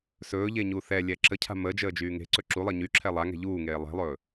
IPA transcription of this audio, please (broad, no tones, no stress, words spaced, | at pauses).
sɵːʎeɲu θɛlʲɛ ǁəcʰa̤ mə d͡ʒəːd͡ʒyːŋe̤ ǀɵǁulˠəː ɲyǁʰɛ lˠaŋɛ̤ ʎuːŋeː lˠe̤lˠɵː